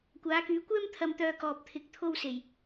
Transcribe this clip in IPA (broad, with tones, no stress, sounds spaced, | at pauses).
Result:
kʷ aː˨˧ k yː˨˧ kʷ ɛː˥ m t̪ʰ ɐ˧ m t̪ œː˧ k ɔː˨ p̚ t̪ʰ ɪ˨ k̚ t̪ʰ o˧ w s e˨˩ j